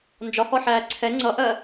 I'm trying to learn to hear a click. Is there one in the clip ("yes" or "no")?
yes